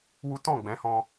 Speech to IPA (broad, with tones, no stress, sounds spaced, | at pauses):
w u˦ t ɔ̃˦˨ ɡ͡b ɛ̃˨˦ h ɔ̃˧